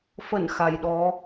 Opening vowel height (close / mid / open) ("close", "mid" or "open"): mid